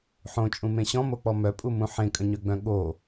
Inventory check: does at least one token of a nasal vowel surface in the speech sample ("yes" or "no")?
yes